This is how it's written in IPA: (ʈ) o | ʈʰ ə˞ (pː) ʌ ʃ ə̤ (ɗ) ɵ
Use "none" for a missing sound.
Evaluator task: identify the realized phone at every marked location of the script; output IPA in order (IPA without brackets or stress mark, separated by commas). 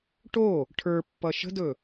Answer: ʈ, pː, d